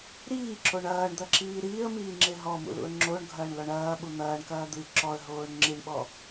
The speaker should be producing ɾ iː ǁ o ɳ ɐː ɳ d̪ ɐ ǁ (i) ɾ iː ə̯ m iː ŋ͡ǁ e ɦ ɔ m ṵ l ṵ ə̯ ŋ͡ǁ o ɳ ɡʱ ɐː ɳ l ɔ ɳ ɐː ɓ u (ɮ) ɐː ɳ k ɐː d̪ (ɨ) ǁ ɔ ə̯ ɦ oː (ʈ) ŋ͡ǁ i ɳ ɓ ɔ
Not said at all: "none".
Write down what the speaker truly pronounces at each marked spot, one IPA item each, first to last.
iː, n̪, ɨ, ɳ

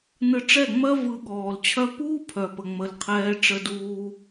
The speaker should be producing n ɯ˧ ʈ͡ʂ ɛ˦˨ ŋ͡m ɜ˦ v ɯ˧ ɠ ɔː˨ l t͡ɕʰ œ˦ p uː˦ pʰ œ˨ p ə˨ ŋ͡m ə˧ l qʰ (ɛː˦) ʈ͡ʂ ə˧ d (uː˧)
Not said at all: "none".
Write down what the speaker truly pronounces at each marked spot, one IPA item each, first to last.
ɛː˦, uː˧

